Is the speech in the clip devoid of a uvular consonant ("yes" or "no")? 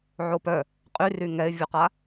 no